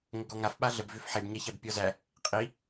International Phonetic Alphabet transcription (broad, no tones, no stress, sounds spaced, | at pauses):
ŋ ə ɡ ɔ ŋ a f ɓ a ɮ ə b v ʏ f ħ e b ɲ æ ç æ b pʲ ɔ z æ | qʼ i